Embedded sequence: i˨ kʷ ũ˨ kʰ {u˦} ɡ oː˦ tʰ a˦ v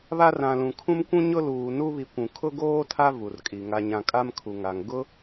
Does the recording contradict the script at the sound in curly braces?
yes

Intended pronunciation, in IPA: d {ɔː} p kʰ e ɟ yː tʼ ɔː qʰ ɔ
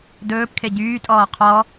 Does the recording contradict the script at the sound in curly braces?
yes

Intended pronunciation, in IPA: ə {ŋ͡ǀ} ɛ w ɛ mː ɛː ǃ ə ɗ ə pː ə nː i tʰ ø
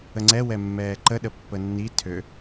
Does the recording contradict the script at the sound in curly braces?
no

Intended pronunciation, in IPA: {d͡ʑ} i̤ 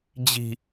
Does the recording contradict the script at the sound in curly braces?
no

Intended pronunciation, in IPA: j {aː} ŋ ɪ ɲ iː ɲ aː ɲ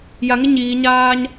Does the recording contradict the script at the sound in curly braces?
yes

